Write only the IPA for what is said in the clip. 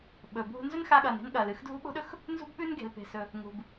ɓɵ˩bʱṳ˧ nzɵ˥nxa˧ɠɐː˩n e̤˥nɠɐː˩l ɨ˧xdʱṳ˥ɓo̤˥ɗɵ˥x | nzṳ˥bɓʉ˥nɡe̤˩l pe̤˩sɵ˩ | ŋṳ˩b

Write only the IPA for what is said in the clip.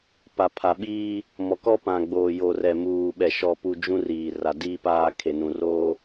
pa˨pʰa˨ɓiː˦ | mɔ˨kɔ˦pã˨ɡ͡boː˨ jo˨rɛ˨muː˨ɓɛ˨ ʃɔ˨pu˨ d͡ʒũ˦ riː˨ra˨diː˦paː˦ kʰe˨nũ˨roː˦

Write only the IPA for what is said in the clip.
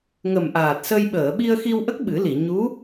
ŋə˨˩mʔaː˨˩t̚sə˧j ɓəː˨˩˨ɓi˧ə̯xi˧wʔə˦˥k̚ ɓɨ˨˩˦li˨˩˨ ɲu˧˥

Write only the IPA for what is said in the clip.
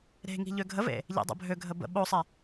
ɾe̤ŋi̤ ʎøɡʱəvḛ | ʎḛdˤḛbʱøɡʱə bə̰ ɓosˤe

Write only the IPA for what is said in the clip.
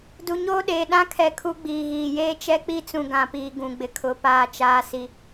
du˨ɲoː˦ɗeː˨ ɗã˦kʰɛ˨ kʰu˦ ɡ͡biː˨ɣiː˨ jeː˦t͡ʃɛ˦k͡pi˦t͡sũ˨ ɡã˨piː˨ ɡũ˨ɡ͡bɪ˨kʰʊ˨˦ paː˨t͡ʃaː˨ si˨

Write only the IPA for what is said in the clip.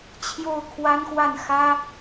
t͡ɕʰjo˥˩ʊ̯kʰwa˥nxwa˥˩n xä˥

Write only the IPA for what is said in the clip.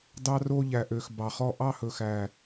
dɑ˦ro˦ʎæ˨ʔø˨x bɑ˨χɔ˦ ʔɑ˦hɵ˨xæ˨

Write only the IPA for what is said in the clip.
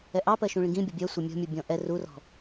ɛʔɑpɜ ʃũɭĩɡĩbʲɔ bʲɜsʷɛ mʲɔ̤mʲu bʲɔ̃ʔɛ rurɔ̤

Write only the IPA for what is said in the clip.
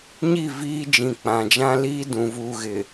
ɲi˦˨viː˦ d͡ʒĩ˨k͡pã˨d͡ʒã˦liː˦ dũ˨vuː˨ɣɪ˨

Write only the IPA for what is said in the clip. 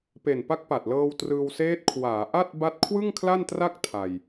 pe˨˩npa˦˥k̚ pa˨˩t̚lɤː˧w trɯː˧wseː˦˥t̚ kʰwaː˩˦ʔa˥˩t̚ ba˥˩t̚ kʰwɯ˥˩ŋkʰla˥˩ntra˥˩k̚ tʰa˧j

